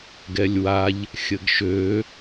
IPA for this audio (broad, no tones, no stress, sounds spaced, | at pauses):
ɡ ɛ lʲ w a ʎ | xʲ ə ɡ ʃ ø